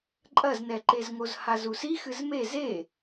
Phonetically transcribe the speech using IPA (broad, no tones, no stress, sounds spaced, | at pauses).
ǃʼ ɐ z n ɛ ǃ e z ŋ o z h a z u s i x ɨ z m e z e